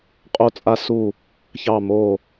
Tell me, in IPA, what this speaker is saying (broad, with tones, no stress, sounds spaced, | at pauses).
qʼ o˥ t͡sʼ a˥ s u˥˧ | ç ɑ˥˧ m o˥˧